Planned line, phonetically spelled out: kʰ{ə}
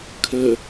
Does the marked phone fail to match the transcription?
no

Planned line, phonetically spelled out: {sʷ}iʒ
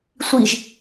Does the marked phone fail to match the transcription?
no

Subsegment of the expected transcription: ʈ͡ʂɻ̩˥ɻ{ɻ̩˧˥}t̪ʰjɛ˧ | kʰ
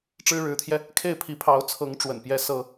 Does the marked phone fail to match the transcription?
no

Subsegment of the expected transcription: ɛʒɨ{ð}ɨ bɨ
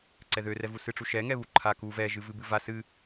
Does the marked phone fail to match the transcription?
yes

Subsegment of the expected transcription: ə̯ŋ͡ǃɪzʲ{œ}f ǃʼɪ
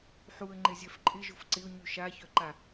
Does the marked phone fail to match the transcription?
no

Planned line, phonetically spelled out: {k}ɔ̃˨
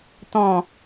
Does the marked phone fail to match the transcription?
yes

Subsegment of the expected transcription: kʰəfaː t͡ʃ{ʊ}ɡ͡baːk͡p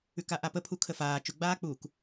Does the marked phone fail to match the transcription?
no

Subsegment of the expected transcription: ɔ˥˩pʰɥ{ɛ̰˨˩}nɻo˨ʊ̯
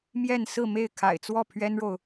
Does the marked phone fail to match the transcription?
yes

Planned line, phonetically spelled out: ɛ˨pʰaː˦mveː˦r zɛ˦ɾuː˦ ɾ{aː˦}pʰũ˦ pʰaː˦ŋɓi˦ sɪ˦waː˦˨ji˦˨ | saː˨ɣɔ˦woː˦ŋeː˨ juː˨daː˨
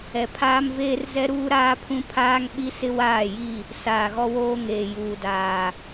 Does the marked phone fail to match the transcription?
no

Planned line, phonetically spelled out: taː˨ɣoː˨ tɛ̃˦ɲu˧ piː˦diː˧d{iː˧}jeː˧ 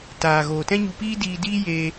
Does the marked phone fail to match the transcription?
yes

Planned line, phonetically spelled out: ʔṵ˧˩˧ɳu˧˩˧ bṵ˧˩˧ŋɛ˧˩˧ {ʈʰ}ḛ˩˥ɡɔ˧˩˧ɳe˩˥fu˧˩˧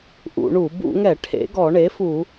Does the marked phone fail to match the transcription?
no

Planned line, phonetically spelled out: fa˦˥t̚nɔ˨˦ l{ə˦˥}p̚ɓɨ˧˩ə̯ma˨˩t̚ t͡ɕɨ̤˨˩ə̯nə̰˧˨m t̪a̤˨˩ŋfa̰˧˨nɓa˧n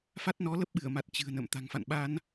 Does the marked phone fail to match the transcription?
no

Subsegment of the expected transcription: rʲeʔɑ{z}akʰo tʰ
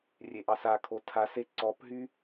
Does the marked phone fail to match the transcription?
yes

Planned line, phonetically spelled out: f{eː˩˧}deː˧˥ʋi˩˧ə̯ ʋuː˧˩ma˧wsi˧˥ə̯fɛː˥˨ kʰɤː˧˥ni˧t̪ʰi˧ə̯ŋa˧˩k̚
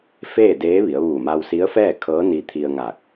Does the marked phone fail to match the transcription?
yes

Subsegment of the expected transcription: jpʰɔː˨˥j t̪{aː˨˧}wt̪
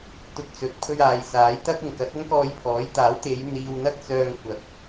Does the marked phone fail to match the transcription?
yes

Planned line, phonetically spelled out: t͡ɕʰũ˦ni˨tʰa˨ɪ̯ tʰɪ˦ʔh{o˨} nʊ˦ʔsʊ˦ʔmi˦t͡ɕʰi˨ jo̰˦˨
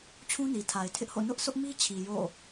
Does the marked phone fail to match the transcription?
yes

